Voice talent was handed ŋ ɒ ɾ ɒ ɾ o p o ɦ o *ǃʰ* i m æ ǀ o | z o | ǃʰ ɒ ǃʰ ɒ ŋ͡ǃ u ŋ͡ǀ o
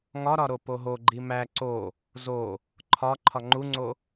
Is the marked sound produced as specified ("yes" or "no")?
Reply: no